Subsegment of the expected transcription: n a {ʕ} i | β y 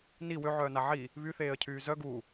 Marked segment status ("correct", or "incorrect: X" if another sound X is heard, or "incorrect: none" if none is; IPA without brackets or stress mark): correct